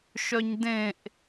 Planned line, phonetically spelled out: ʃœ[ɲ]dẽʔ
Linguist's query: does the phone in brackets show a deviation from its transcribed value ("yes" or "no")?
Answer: no